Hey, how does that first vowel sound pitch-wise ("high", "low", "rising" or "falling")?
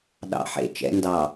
low